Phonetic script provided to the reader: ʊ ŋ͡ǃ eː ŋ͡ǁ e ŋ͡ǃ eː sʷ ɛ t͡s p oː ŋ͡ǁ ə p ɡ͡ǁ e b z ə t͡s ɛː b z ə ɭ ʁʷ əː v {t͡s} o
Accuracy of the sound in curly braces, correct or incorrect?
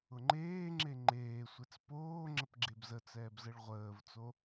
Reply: correct